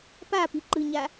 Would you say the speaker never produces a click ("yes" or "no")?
no